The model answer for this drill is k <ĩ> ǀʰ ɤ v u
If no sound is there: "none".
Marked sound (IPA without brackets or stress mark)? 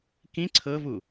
ĩ